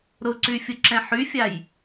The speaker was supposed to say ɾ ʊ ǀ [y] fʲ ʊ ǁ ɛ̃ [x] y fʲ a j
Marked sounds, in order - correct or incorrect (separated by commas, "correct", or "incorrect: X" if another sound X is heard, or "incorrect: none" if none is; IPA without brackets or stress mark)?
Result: correct, incorrect: ħ